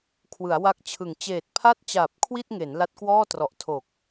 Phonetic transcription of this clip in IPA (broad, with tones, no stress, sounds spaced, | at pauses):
kʰ w ɯ˩˦ a̯ w a˦˥ k̚ t͡ɕʰ ɯ˨˩ ŋ t͡ɕ eː˨˩ t̚ pʰ a˥˩ t̚ t͡ɕ aː˨˩ p̚ kʰ w i˥˩ t̚ ŋ e˩˦ n l a˦˥ t̚ k w ɔː˥˩ t r ɔ˨˩ ʔ tʰ o˨˩ k̚